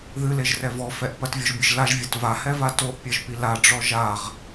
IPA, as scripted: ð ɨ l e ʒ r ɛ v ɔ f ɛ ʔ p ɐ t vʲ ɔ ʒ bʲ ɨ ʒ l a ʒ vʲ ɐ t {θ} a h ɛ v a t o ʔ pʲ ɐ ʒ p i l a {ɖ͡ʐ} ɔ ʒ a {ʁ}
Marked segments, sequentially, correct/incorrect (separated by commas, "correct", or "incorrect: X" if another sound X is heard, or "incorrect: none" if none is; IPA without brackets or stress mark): incorrect: v, correct, correct